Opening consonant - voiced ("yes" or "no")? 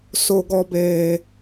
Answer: no